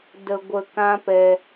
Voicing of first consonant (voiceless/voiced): voiced